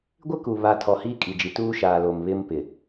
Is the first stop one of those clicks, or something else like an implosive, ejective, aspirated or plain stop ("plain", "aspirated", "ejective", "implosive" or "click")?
plain